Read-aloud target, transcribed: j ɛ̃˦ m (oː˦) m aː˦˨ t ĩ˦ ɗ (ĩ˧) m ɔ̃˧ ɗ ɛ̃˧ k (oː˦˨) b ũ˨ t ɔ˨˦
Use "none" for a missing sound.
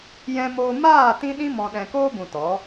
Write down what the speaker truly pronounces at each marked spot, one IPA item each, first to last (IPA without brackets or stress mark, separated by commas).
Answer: oː˦, ĩ˦, oː˦